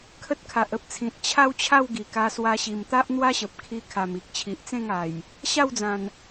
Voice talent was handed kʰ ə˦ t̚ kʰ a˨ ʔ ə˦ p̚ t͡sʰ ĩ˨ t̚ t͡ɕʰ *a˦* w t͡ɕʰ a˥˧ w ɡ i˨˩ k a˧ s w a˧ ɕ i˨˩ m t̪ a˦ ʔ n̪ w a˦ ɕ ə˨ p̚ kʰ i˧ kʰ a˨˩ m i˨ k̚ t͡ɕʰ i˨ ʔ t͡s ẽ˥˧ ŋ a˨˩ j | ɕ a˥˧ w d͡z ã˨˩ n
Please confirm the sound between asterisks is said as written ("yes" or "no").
yes